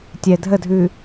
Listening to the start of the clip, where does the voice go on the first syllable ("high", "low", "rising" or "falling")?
low